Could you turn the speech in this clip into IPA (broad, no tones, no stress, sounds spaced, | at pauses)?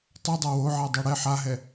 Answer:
tˤ ɛ dˤ a w o ʕ a dˤ o ɽ ɛ ħ a ɦ ɛ